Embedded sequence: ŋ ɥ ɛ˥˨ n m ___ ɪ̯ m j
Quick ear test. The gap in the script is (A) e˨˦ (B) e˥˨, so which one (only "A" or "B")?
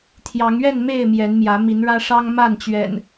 B